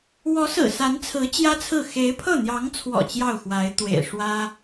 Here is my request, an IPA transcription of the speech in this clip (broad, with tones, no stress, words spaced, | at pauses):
wɔ˧˥sɹ̩˨˩ sa˧˥nt͡sʰɹ̩˧˥ t͡ɕjä˥t͡sʰɹ̩˥˩ xe˧˥ɪ̯pʰɤ˥˩n̪jɑ˧˥ŋt͡sʰwɔ̰˨˩ t͡ɕjɑ˥˩ʊ̯xwa˧˥ɪ̯t̪wḛ˨˩ɪ̯ ʂwä˥